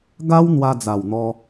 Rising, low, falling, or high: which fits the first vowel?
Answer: high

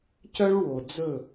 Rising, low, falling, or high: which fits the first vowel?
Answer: high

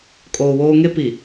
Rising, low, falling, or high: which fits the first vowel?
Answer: low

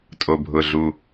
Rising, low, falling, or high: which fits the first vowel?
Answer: low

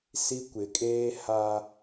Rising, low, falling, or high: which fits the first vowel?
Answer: high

